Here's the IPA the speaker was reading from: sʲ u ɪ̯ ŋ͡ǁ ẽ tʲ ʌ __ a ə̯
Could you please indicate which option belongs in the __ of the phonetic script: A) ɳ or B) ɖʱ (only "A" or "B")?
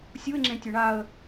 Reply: A